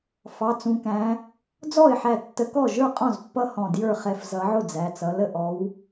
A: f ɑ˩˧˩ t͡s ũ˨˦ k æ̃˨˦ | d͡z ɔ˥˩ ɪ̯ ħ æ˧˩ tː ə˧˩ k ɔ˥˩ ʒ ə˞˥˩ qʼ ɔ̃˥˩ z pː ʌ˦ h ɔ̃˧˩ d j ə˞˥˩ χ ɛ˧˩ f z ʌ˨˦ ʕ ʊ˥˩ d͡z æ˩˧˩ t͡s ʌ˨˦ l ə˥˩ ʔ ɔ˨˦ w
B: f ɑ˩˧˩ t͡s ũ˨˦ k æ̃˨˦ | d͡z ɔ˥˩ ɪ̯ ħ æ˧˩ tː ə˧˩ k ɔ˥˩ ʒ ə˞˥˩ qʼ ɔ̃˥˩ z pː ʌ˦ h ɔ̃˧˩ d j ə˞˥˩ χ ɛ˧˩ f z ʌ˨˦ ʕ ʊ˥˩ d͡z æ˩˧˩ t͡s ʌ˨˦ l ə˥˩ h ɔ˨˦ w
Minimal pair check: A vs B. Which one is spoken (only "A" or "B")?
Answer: A